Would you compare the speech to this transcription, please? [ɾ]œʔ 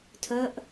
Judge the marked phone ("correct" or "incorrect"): incorrect